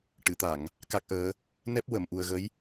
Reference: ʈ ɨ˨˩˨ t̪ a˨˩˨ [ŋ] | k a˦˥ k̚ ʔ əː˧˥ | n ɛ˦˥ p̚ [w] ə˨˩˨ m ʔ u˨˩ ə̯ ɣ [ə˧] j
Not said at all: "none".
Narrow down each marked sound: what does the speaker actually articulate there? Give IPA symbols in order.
ŋ, w, ə˧˥

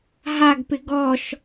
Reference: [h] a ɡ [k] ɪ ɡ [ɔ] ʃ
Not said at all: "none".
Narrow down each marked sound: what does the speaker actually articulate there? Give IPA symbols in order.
ɦ, p, ɔ

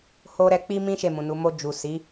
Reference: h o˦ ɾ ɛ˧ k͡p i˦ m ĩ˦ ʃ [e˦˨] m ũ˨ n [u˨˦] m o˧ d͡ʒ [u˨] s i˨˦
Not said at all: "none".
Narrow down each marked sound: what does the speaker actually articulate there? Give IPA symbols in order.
e˦˨, u˨˦, u˨

